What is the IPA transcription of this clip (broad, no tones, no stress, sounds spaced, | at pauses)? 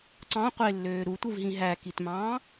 ǀ ɑ̃ qʷ e lː øː ɾ u tʷ ɯ v ɦ ĩ ɦ æ k i t m ɑ̃ː